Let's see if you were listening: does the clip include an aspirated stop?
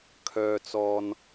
yes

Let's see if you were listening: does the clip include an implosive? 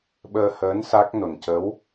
yes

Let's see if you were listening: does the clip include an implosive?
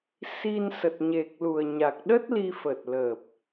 yes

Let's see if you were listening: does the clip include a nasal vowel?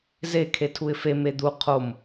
no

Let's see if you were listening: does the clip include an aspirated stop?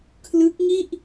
yes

